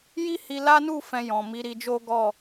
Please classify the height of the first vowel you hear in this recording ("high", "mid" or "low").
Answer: high